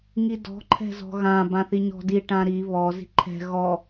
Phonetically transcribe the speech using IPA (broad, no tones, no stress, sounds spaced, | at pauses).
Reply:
ŋ i d ɔ̤ ǃʰ ɛ̤ z ɔ̤ ɣ ã b ã θ i ɲ ɔ̤ d i ʈ ã ɾ i β ɔ z i̤ ǃʰ ɛ̤ ɣ ɔ